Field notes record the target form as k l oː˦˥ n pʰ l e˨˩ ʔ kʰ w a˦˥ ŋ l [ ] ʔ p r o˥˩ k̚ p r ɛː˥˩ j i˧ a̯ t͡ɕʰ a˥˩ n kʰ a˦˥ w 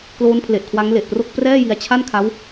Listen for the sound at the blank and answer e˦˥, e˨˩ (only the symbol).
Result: e˨˩